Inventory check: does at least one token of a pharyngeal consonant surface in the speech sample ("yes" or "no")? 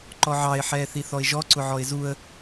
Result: yes